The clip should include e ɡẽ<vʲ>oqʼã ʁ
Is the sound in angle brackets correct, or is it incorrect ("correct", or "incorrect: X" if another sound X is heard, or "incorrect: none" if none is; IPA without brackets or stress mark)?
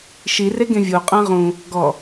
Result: correct